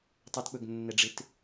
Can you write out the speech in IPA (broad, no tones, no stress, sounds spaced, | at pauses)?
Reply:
tˤ ɵ t k͡p ɵ ɡ nː ɛ ɖ͡ʐ ɪ t